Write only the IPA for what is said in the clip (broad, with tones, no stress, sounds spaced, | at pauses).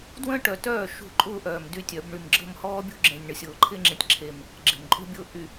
d w ə̃ː˦ ʈ œ˨ t œː˦˨ ʃ ṳ˦˨ ǃʼ ʊː˦ ʔ œː˨ m d y˦ tʲ œ˨˦ b ɳ y˨ m ɡ͡ǁ ə̤˦˨ m h ɔː˦ bʲ ṳ˦ ɡ͡ǁ ẽ˨ nʲ ɳ ə˨ sʲ ʊː˨ ǃʰ ɪː˦ ŋ͡ǁ ẽ˨ tʲ ǁʰ e˨ m | ɡ͡ǁ e̤˨ m ǃʼ ṳ˦ bʲ ʊː˦ ʔ y˨